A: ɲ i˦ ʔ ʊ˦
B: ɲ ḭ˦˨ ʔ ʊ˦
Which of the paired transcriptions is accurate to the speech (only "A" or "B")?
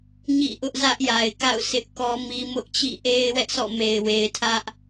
B